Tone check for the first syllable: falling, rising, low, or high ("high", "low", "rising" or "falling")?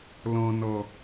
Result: low